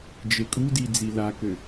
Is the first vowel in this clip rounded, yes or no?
no